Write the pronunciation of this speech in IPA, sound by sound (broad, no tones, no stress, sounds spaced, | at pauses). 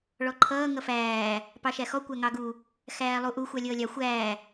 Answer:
ɭ ɔ ǃʰ ʌː ŋ ʌ f æː | p ɑ ʃ æ x ɔ kʷ æ ŋ ɑ ɡ u | x æː lˠ u ʔ u xʷ ɑ lʲ ʌː lʲ ɑ xʷ æː